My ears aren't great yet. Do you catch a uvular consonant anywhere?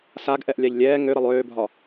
no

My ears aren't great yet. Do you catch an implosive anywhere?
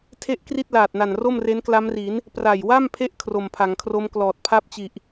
no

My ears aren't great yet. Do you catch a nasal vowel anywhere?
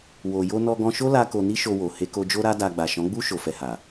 yes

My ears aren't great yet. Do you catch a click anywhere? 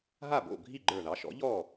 yes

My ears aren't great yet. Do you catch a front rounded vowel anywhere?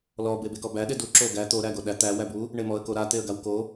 no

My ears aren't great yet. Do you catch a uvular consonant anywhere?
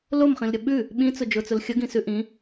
yes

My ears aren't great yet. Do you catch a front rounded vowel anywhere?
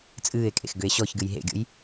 yes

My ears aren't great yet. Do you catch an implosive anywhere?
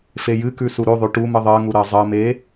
no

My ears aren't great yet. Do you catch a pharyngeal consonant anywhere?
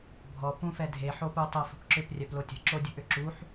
yes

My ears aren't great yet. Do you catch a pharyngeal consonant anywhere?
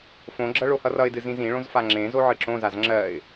yes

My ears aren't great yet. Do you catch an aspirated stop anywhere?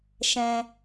no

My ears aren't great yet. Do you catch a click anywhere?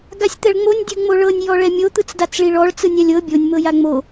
no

